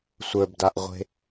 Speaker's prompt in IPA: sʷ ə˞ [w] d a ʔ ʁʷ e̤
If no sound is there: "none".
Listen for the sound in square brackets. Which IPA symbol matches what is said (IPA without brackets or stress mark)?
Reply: b